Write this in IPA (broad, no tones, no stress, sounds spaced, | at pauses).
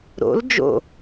ɾ o̰ l d͡ʒ o̰